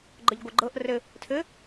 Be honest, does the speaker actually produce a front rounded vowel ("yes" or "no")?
no